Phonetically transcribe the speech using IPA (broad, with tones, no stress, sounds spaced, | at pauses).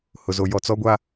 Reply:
h ʊ˨ z o˨ j ɔ˨ t͡s ɔ˦ ɡʷ a˦